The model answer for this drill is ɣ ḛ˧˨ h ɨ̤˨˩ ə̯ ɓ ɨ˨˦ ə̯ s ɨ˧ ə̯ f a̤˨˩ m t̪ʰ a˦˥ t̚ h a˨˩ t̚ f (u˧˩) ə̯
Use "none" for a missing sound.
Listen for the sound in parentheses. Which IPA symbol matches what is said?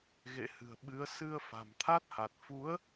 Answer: u˨˦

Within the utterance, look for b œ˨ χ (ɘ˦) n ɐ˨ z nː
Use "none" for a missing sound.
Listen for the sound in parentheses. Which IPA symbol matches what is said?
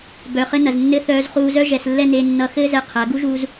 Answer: ɘ˦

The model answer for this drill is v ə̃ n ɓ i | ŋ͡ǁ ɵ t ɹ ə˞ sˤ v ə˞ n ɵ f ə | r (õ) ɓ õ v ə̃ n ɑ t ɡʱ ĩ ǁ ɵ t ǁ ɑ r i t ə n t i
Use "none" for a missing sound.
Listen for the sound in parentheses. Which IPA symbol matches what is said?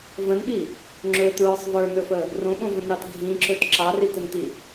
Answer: õ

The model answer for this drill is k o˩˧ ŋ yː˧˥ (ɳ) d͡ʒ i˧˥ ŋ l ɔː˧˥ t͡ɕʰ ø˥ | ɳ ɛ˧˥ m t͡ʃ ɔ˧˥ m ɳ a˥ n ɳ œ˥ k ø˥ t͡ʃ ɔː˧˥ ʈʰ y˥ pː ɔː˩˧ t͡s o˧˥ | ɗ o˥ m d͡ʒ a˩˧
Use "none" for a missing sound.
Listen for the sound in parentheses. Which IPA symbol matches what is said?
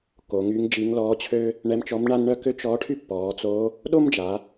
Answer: ŋ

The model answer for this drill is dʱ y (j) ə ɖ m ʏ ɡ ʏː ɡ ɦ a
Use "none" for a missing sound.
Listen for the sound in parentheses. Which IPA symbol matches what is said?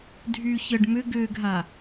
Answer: ç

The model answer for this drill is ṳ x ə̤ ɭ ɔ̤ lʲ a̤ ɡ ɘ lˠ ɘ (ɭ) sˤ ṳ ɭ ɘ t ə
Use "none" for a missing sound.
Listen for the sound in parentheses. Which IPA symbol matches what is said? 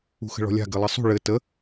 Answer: none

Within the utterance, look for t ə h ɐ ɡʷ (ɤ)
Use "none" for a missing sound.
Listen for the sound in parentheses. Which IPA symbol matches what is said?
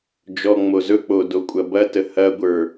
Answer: ə˞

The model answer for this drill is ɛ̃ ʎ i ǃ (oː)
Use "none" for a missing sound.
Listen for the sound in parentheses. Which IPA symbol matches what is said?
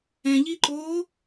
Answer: oː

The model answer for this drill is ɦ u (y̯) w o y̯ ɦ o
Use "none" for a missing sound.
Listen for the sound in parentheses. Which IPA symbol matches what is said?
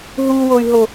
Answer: none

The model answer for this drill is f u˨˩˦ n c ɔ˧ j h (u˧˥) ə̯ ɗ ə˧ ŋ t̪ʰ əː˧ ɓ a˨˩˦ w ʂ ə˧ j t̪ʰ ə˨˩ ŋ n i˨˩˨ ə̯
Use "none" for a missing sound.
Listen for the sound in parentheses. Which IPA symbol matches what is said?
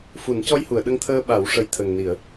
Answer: u˨˩˨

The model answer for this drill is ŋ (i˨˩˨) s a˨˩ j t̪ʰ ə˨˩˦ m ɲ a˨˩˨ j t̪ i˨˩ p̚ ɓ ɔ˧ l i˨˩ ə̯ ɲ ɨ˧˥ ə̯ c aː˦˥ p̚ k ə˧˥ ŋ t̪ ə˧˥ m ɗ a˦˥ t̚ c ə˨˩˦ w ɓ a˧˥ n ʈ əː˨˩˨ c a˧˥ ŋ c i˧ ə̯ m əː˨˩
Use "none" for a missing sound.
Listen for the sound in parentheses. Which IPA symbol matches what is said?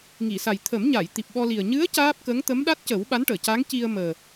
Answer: i˨˩˨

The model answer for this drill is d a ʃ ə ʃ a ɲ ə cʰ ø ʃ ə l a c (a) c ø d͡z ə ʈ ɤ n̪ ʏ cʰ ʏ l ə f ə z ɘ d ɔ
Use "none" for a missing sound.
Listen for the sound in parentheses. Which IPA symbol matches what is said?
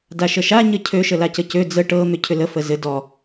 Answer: ə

